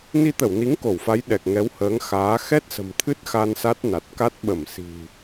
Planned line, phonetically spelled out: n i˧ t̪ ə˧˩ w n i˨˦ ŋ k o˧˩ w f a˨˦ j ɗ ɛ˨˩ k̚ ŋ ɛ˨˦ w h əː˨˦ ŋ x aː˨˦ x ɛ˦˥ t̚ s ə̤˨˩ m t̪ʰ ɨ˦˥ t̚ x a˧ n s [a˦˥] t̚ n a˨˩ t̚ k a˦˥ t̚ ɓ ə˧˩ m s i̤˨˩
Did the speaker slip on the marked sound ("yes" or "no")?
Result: no